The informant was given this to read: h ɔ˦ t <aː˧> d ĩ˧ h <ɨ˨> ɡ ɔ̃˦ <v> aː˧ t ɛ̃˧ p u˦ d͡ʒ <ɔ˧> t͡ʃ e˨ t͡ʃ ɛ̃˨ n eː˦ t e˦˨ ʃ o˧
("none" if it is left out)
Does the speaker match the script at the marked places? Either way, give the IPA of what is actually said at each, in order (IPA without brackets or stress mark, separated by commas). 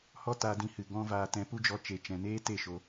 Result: aː˧, ɨ˨, v, ɔ˧